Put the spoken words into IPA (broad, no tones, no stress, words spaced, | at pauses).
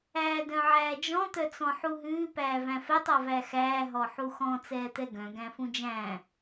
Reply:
æːdœ̃ʕæːd͡ʒɔ̃ t̪œt͡sɔ̃ħuɦʉː pæːvæ̃fɛtˤ ɔvæxæː ɦɔħuxɔ̃ t͡sɛːt̪ɛɡœ̃ ɡæ̃fũd͡ʒæ̃ː